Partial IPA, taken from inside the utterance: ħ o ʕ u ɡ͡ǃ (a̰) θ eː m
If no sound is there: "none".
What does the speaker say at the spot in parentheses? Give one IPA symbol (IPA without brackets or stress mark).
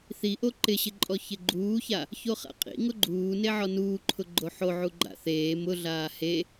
a̰